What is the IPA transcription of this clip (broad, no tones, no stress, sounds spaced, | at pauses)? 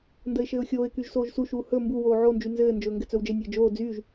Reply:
n d ə ɪ̯ ʃ ɘː ʊ̯ xʲ oː ɪ̯ k y ʒ s oː ʒ s u ʃ uː h ɵ m b u w oː ʕ o n d͡ʒ y n z ɘː n d͡ʒ ɵː ŋ ɡ ɘ t͡s ɵ w d͡ʒ ɘ nʲ ɘː d͡ʒ oː d͡z yː ʒ